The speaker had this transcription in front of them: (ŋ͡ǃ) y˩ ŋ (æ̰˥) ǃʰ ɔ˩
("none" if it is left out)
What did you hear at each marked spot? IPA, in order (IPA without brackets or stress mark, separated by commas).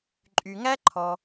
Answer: ǃʼ, æ˥